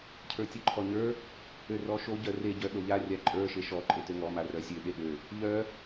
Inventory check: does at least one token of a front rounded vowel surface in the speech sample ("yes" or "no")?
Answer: yes